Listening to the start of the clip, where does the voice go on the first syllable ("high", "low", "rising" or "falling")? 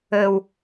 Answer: low